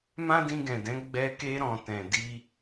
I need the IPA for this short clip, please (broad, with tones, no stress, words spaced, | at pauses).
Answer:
mã˦dĩ˧ɡɛ̃˨dɛ̃˨˦ ɡ͡bɛ˧ke˧ ɾɔ̃˨ tɛ̃˨ di˧